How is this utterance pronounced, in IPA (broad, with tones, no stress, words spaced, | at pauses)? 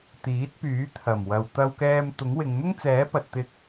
t̪iː˨˥t̚pyː˨˥ t̪ʰɐ˨˩mwɐ˨w t̪ɐ˥wkɛː˥m t̪ʊ˨˥ŋwɪ˨˧ŋ n̪ʊ˥ŋt͡sɛː˨˥pɐ˨t̚ t̪ɪ˧k̚